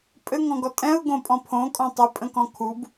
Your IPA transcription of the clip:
pʼ ɘ ŋ ɔ̃ ɡ ɔ tʼ ɛ̃ ʊ̯ ɡ õ pʼ ɔ̃ pʰ õ kʼ ɔ̃ tˤ ɘ pʼ ə̃ k ɔ̃ kʰ u b

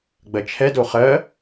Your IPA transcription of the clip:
ɡ͡b ɜ t͡ʃʰ ɛ d o χ ɜ

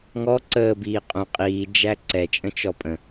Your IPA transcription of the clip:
ŋ ɔ ǀ əː b iː qʼ ũ qʼ iː d͡ʒ æ ǀ ɛ t͡ʃʼ ə̃ t͡ʃ ɔ pʼ ə̃

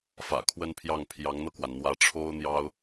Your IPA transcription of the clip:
f ä̰˨˩ kʰ w ə˥ n pʰ j ɑ˥˩ ŋ pʰ j ɑ˧˥ ŋ n̪ ɤ˧ k w a˩ n n̪ w ä˧˥ ʈ͡ʂʰ o˥ ʊ̯ n̪ j ɑ˥ ʊ̯

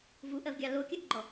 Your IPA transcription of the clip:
v u ʔ ɜ v ɡʲ ɑ l o kʲ ɜ ʔ ɡ͡ǃ ɔ

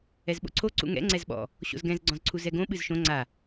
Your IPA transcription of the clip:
ɛ z ɓ o̰ ǀʰ o ǀ ṵ ŋ ɛ̰ ŋ͡ǀ ɛ z ɓ ɔ̰ | ɕ o̰ z ɡ ɛ̃ z ɡ͡ǀ ɔ̃ z ǀʰ u z ɛ ɡ õ ɓ ɨ z ʃ õ ŋ͡ǀ a

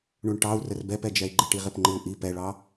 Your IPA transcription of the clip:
ɳ u ɳ ʈ ɑ u̯ r ə r b ɛ p ɛ d͡ʒ ɛ i̯ ɡ͡ǃ ɪ ʈ i ʁ ɪ p ŋ͡ǃ ɪ u̯ ʔ i p ɛ ɭ ɑ

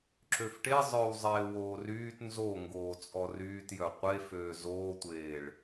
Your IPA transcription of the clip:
ǁ ø f ʈ e zˤ œ w zˤ eː w oː r yː t n z o ŋ ɡ oː t͡sʼ ɔ r yː t j œ qʷ e f øː z oː tʷ eː ɭ

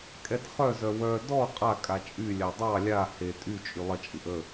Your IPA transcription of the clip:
kʼ ɛ t χ œ z œ w œ d ɔ qʼ a kʼ a t͡ʃʼ y lʲ a dˤ ɑ lʲ a h e tʼ y t͡ʃʼ y lˠ ə t͡ʃʼ ɯ ʔ ə

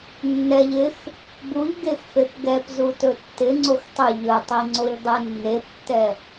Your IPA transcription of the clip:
nː ɛ ʎ ɪ x | b u ʎ ɡ e x f e p ɡ ɛ p z u t ɵ tː ɪ ŋ͡ǀ o x tˤ ʏ ʎ ɵ tˤ i ŋ͡ǀ o ʎ dˤ e nː e p tː ɛ

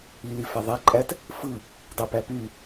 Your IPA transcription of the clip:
i l i f æ ðˤ æ ǃʼ æ t | f ɯ | dˤ i p æ p y

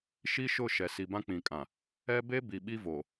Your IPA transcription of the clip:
ʃ i˦ ʃ ʊ˦˨ ʃ ɛ˨ s i˨ b ã˦ k͡p ĩ˨ kʼ ã˨ | ɛ˦ b e˦ b i˨ ɓ i˦ v o˨

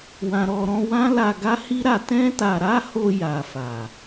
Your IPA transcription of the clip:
w ã˨ ɾ ɔ˨ ɾ ɔ̃˧ w ã˦ l a˧ ɡ a˦ h i˦ ɾ a˧ t ɛ̃˦ t a˧ ɾ a˦ h o˧ j a˨ f a˨

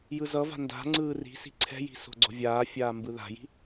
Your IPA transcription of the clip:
j ɯ z ʌ v a̤ n d a̤ ŋ͡ǀ ɯː r i̤ s i̤ ǀʰ ɛ̤ j i̤ s o̤ ɡ͡ǀ o̤ vʲ aː fʲ aː m b ɯ ð a̤ j i̤

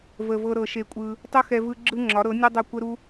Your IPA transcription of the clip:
v ə˨ v ɤ˧ ɾ ɤ˧ ʃ e˧ kʷʼ ɯ˧ | tˤ ʊ˦ x ɛ˧ v ɯ˧ ɡ͡ǁ ɯ˦ ŋ͡ǁ ɒ˨˦ ɾ ɤ˨˦ nʲ o˦ dˤ o˦˨ kʷ ə˦ ɾ u˦

